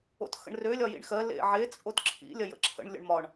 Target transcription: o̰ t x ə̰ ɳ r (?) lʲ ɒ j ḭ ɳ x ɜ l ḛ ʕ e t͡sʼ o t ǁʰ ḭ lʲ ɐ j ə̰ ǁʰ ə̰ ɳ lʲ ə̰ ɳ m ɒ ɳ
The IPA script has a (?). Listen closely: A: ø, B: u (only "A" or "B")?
A